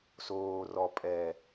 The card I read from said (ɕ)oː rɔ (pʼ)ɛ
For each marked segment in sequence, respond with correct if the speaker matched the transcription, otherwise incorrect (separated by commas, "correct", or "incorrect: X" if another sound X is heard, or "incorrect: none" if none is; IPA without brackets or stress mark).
incorrect: s, correct